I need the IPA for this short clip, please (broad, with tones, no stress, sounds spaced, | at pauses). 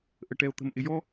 ʔ ə˧ ʈ ɛ˧ o̯ t̪ ə̤˧ m ʔ ɪ˧ j ɔ˥